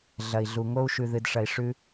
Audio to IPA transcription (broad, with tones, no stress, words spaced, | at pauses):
ɮɐ˨i̯ɮu˨ŋo˦u̯ʃʉ˨ ðɨ˨dʂɐ˨i̯ ʂʉ˦